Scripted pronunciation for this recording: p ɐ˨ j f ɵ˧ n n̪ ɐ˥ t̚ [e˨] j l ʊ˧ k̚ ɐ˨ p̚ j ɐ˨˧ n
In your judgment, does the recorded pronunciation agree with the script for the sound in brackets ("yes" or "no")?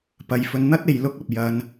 yes